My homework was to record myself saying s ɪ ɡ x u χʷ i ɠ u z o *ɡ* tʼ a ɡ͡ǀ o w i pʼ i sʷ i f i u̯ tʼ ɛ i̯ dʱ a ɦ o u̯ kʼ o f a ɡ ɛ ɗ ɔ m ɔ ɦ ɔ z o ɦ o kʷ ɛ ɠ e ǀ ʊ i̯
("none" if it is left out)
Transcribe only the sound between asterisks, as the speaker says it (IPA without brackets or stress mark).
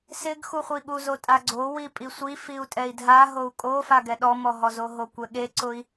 none